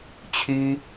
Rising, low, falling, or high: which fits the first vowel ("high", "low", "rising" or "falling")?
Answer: high